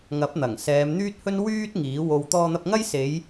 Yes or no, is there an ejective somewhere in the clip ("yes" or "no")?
no